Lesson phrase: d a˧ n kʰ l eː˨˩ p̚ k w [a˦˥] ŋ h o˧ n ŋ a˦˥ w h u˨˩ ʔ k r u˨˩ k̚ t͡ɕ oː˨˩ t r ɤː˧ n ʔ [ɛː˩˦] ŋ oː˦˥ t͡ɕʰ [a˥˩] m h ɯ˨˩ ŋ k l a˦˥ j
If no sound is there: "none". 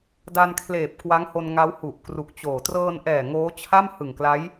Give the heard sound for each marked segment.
a˦˥, ɛː˨˩, a˥˩

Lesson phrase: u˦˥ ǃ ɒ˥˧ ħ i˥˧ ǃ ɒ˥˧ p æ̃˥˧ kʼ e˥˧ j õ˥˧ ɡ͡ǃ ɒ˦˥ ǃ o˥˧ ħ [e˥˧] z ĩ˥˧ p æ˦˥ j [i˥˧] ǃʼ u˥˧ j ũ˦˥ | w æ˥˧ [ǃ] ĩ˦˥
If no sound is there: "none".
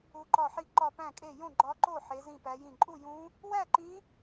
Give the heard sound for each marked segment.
e˦˥, ĩ˥˧, ǃ

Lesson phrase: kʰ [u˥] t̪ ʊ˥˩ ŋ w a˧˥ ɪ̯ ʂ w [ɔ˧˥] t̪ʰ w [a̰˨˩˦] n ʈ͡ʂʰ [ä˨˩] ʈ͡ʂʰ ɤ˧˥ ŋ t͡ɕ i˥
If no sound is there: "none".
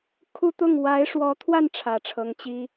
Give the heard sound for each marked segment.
u˥, ɔ˧˥, a˥˩, ä˨˩

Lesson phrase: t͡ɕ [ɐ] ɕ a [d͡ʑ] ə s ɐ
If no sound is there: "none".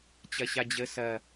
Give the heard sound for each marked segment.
ɐ, d͡ʑ

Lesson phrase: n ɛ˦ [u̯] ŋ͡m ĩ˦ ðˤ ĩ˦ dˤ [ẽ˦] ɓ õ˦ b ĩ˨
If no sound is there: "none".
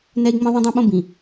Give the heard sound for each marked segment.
i̯, ẽ˦

